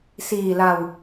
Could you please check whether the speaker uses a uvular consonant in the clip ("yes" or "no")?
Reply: no